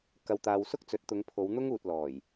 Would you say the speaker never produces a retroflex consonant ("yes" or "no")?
yes